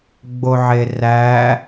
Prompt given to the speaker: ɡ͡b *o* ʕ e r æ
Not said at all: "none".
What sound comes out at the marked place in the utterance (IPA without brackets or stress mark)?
o